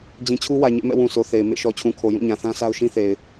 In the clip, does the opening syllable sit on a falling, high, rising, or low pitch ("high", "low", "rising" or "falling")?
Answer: low